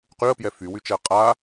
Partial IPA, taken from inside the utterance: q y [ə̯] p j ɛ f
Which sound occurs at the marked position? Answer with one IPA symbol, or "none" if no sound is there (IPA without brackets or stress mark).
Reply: ə̯